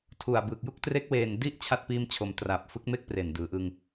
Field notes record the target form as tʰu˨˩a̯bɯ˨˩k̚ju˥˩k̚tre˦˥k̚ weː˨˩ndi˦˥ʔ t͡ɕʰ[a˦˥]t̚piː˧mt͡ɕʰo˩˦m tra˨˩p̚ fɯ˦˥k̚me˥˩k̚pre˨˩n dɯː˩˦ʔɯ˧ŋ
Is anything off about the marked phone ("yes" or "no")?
no